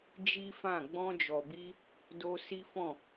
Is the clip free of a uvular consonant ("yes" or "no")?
yes